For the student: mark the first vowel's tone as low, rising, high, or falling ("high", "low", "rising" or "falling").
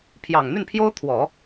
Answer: low